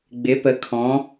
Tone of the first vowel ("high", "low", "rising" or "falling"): rising